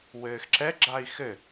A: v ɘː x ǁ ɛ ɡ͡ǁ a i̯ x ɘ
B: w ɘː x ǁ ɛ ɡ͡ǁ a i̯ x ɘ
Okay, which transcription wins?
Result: B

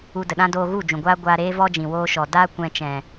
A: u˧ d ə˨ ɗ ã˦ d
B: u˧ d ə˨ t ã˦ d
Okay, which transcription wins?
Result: A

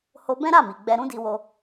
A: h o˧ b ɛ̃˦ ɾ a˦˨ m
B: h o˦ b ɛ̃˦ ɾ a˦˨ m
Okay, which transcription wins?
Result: A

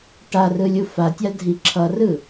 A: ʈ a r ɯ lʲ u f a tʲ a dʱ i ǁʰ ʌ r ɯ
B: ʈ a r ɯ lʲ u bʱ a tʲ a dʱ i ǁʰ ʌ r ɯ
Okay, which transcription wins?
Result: A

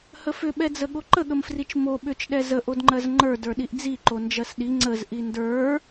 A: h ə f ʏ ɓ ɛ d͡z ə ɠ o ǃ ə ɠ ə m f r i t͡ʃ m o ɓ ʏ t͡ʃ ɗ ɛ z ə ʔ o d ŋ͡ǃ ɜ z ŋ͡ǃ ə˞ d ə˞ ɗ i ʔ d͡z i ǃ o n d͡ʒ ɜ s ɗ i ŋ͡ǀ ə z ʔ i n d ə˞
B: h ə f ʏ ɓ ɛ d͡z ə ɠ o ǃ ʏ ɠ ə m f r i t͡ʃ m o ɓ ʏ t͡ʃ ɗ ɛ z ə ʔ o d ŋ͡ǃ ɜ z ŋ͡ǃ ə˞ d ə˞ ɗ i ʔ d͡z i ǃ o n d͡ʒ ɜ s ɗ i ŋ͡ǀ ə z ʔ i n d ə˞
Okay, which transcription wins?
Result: A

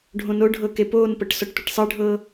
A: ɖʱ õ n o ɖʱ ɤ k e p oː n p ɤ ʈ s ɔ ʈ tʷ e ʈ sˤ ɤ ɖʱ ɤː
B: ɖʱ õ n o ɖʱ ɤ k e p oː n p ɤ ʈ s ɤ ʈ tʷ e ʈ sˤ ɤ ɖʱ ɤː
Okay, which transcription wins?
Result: A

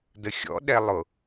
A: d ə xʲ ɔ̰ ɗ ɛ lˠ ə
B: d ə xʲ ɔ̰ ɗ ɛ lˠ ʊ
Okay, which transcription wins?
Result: B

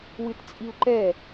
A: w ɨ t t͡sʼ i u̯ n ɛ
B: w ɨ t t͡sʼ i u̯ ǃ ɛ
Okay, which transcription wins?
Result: B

